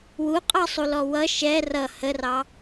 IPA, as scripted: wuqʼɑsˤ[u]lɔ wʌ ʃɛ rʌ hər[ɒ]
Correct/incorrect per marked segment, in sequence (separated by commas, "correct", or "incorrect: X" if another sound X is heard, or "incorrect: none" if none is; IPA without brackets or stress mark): correct, incorrect: ɑ